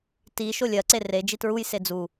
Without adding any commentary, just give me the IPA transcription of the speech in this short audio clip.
t i ʃ o lʲ ɜ ǀ e r e d͡ʒ i t ɹ u j s e d͡z u

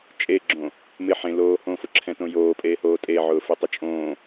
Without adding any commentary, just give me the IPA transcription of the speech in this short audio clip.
t͡ʃʼ e ɡ͡ǁ õ | m ɪ ħ ẽ l oː h õ f ʊ ǁʰ ɛ̃ t õ j oː pʼ eː h oː tʼ e ʕ ʊː f e tˤ ʊ t͡ʃʼ õː

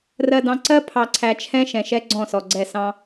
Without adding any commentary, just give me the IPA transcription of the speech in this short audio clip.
r ɜ˨ d ɑ̃˨ ǀ ɜ˦ pʰ ɑ˨ ǀʰ æ˨ t͡ʃʰ ɛ̃˦ ʃ ɛ̃˨ ʃ ɛ˦ ɡ͡ǀ ɔ̃˦˨ s ɔ˨ ɡ͡ǀ ɛ˦˨ s ɑ̃˦

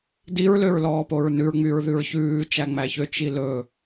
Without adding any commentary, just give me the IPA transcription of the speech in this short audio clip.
d i ɹ l ø ɹ l ɔː p o ɹ n ʉ ɹ ŋ͡m y ɹ ð ʉ ɹ ç ʉː t͡ʃ æ ŋ͡m æ ç ø t͡ʃ i l ɵ

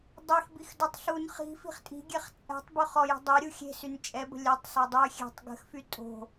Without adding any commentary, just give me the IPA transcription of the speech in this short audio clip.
dˤ e x b i x d o tˤ ɬ u n χ i̤ f i̤ χ tʼ i̤ ɡʲ ɛ χ t͡sʼ ɛ̤ tˤ b ø χ ɔ j i̤ dˤ ɛ ɾʲ u xʲ e̤ s y n t͡ʃʼ ɛ b ə̤ lʲ œ tˤ s o dˤ y xʲ ɛ̤ tˤ ɡ ə̤ x f y tʼ o̤

